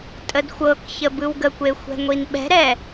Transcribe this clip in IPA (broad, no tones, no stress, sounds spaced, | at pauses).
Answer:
tʼ ə d xʷ ɤ k ç ə b ɯ w ɡ ə kʷ e xʷ ɛ̤ ŋʷ i n ɓ ɛ̤ ɾ ɛ